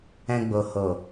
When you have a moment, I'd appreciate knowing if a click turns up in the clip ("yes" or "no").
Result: no